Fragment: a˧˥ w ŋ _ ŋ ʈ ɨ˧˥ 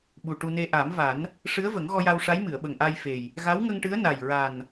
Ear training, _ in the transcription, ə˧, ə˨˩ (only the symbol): ə˧